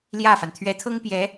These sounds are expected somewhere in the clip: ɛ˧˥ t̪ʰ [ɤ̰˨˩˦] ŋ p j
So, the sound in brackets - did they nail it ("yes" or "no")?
no